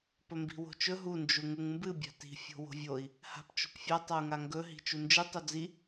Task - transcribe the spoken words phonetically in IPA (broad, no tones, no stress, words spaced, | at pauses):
pɵmbi̤wo̤t͡ʃɵ ɦu nd͡ʒuŋuŋmbɨ bʲa̤ti̤ fʲo̤wo̤vʲoi̯ | ha̤pt͡ʃo̤pfʲa tˤau̯ŋaŋɡɵ ɦi̤t͡ʃund͡ʒɨ tˤod͡zi